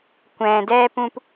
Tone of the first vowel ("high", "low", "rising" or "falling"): low